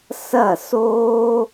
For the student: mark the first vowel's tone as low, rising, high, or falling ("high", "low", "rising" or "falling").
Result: falling